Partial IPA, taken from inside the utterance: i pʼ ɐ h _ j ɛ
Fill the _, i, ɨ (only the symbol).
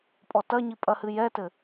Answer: ɨ